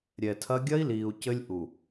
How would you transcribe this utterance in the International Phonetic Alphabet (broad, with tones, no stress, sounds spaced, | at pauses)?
ɾʲ ɛ˨ tʰ ɐ˦ ɡʲ ɐ˦ i̯ l iː˨ u̯ c ɘ˦ lʲ ʔ u˨